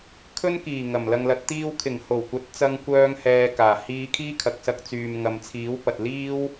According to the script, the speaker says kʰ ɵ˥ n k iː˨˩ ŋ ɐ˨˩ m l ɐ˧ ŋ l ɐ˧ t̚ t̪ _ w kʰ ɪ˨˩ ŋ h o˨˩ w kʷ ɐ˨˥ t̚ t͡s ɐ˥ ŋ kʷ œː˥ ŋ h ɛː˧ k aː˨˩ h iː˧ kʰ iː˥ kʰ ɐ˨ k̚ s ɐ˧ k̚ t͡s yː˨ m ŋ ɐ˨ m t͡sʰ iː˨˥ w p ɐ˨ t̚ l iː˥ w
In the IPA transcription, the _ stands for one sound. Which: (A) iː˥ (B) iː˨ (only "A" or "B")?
A